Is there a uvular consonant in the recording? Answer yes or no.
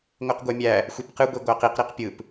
yes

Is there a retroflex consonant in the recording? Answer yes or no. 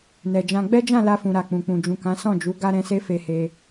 no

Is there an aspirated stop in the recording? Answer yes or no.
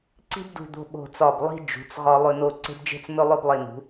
no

